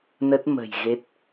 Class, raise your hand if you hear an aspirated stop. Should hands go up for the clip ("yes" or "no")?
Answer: no